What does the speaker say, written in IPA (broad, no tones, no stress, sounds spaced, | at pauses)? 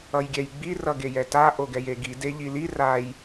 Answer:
ʌ j ɡʲ ɛ j ɡ͡b i r ʌ ɡ e j ɛ t a ʔ o ɡ ɛ j e ɡ i d e ʎ i l i r a j